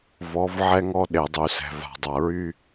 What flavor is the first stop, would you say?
implosive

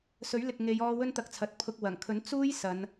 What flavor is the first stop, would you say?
plain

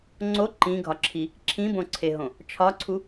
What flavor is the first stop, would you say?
click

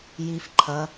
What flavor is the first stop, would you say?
click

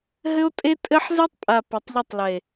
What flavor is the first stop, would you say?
ejective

